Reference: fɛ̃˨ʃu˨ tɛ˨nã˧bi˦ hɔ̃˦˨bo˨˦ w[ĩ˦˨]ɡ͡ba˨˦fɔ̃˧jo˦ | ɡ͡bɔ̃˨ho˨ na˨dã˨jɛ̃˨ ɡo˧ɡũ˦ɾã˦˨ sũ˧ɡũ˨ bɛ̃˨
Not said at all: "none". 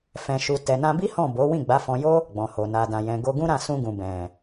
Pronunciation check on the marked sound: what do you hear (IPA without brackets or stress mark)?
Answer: ĩ˦˨